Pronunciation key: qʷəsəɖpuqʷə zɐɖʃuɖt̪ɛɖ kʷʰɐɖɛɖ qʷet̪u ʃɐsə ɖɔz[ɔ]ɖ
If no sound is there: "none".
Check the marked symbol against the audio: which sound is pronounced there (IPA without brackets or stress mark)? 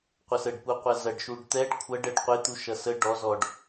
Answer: ɔ